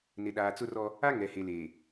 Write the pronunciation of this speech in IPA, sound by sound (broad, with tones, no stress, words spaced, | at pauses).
nɪ˨ɗaː˨t͡sʊ˦rɔ˦ | a˦ ŋɛ˨he˨leː˨